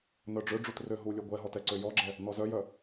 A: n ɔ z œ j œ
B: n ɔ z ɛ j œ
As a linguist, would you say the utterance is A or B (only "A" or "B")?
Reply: A